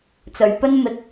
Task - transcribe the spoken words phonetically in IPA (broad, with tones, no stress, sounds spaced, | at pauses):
t͡s ɵ˨ ɥ p ɵ˥ n m ɪ˨ k̚